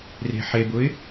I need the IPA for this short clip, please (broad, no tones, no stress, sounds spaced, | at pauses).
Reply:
r e̤ ħ e b ʊ ɪ̯